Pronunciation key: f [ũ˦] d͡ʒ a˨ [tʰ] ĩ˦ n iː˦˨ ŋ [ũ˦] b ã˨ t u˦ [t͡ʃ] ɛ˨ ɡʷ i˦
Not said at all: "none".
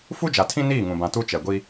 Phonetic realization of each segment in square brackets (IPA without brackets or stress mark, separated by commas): u˦, tʰ, ũ˨, t͡ʃ